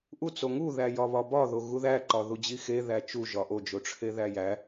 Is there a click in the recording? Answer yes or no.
yes